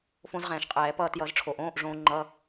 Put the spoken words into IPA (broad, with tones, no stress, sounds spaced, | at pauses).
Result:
f õ˧ z ʁ ɛ̃ː˩ ʃ qʼ ɛː˨˩˦ p ʌː˧ t j ʌ˨˩˦ z ʈ͡ʂʰ o˩ ʔ õː˧˥˧ ʔ ʐ õː˧ ŋ͡ǃ ʌ˧˥˧